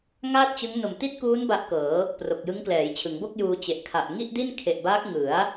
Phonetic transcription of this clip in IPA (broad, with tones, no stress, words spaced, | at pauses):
ŋaː˥˩t̚t͡ɕɯ˦˥ŋ no˨˩mti˥˩t̚kuː˦˥n ba˦˥ʔkɤː˩˦ | pro˨˩k̚jɯ˦˥ŋ klɛː˩˦jt͡ɕʰɯ˩˦ŋbo˥˩k̚juː˧ t͡ɕe˨˩ʔ kʰa˨˩ʔ ŋi˥˩ʔdi˥˩nkʰe˨˩ʔbaː˦˥k̚ ŋɯ˩˦a̯